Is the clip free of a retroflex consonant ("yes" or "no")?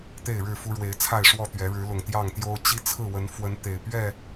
no